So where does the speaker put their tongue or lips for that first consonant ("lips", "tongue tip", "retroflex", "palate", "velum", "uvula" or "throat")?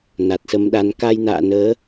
tongue tip